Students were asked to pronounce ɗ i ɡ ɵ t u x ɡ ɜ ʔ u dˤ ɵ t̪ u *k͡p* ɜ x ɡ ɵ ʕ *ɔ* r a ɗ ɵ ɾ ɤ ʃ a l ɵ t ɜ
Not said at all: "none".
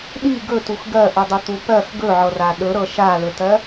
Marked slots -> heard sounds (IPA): p, ɤ

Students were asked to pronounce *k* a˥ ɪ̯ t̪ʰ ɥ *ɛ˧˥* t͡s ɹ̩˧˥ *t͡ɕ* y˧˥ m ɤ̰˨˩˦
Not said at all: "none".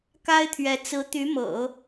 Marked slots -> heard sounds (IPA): k, ɛ˧˥, t̪

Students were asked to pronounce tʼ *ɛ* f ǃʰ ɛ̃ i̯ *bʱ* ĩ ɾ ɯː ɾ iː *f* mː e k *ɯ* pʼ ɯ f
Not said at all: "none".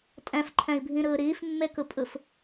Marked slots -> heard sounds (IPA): ɛ̃, bʱ, f, ɯ

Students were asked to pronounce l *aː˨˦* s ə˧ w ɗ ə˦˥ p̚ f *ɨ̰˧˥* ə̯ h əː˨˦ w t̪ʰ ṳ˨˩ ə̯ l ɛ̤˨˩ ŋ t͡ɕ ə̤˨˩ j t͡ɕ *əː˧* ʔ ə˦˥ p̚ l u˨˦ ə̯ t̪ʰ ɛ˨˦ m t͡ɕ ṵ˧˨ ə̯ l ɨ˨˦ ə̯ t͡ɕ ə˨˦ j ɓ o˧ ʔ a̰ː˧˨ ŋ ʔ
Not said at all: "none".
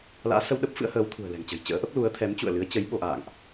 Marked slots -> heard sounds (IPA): a̰ː˧˥, ɨ̰˧˥, ə̰ː˧˥

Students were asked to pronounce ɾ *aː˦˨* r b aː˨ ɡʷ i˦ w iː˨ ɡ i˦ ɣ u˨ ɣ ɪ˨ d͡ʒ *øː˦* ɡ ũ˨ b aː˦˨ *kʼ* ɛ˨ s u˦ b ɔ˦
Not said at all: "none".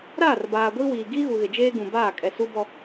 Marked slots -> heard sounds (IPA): aː˦˨, eː˦, kʼ

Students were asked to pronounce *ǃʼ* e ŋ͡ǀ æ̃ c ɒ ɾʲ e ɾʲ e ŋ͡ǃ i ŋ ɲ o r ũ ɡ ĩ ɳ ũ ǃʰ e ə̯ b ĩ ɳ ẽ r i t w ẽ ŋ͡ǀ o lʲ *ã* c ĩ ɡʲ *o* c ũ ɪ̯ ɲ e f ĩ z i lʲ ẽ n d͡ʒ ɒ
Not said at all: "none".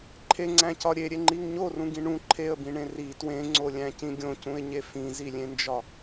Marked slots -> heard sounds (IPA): ǃʰ, æ̃, õ

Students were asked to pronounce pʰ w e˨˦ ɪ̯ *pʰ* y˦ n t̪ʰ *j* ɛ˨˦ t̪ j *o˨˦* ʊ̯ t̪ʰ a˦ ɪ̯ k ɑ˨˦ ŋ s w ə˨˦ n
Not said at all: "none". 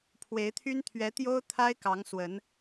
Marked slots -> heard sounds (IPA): t̪ʰ, ɥ, o˦

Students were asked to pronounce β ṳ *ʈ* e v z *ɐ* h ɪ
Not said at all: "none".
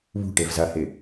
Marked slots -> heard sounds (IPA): ʈ, ɐ

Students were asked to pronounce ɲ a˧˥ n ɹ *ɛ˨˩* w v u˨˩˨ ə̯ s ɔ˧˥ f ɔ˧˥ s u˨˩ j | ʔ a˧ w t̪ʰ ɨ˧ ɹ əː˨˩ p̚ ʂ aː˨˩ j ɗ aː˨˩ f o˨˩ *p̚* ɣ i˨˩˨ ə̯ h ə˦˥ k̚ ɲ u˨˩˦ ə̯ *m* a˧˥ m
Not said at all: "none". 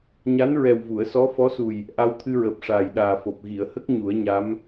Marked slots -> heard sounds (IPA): ɛ˨˩, p̚, ɲ

